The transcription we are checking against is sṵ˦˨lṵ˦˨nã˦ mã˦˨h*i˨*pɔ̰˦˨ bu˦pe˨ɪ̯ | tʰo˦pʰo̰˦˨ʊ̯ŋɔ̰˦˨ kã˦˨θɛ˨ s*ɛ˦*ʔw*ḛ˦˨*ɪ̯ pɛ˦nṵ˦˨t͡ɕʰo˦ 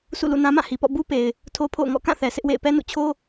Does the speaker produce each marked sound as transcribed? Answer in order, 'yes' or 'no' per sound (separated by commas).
yes, no, yes